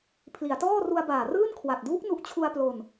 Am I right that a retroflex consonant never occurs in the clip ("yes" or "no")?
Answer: yes